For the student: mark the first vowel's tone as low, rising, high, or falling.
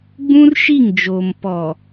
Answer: high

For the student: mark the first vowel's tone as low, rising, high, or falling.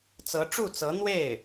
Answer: rising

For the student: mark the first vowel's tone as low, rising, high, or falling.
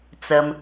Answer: low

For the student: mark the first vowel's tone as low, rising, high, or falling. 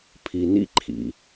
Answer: low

